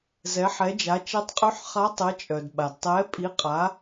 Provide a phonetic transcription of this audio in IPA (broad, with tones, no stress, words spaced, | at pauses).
zɛ˨˦ħɛ˨˦d͡ʒa˨˦ t͡ʃɛ˨˦tˤqʼy˨˦ħχa˨˦ tˤə˨˦t͡ʃʼœ˩d ɓa˩d tˤɛ˨˦pʼi˨˦qʼa˨˦